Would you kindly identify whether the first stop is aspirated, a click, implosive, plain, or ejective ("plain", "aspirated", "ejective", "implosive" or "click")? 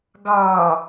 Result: plain